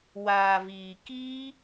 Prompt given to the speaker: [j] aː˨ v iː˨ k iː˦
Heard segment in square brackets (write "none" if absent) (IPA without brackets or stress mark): w